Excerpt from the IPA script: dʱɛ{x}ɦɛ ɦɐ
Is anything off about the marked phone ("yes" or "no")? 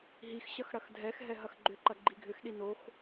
no